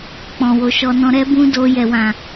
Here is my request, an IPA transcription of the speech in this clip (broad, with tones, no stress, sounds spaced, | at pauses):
k͡p ɔ̃˨ w o˨ ʃ ɔ˧ n ɔ̃˧ ɾ ɛ˧ b ũ˧ d o˧ j ɛ˨ w ã˨